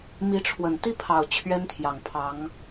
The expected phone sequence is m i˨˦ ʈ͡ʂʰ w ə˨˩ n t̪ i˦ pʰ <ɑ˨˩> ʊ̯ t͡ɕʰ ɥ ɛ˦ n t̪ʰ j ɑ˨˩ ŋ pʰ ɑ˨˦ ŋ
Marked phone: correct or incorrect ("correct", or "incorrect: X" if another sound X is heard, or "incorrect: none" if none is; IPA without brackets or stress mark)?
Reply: correct